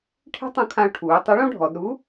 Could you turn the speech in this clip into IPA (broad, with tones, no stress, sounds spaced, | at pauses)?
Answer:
ʈʰ e̤˥ tˤ ũ˧ kʰ ã˧ ʊ̯ ʈʰ uː˩˧ tˤ ɘ˧˥ ɭ õ˥ ɖʱ ɔ˩˧ d ɾ u˧˥